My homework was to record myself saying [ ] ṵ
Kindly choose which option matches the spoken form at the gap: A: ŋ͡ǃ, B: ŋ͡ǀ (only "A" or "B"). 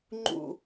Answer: A